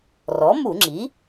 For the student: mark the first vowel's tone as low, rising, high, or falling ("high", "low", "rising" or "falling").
rising